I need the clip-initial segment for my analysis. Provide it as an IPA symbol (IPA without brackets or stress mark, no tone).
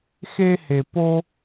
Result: x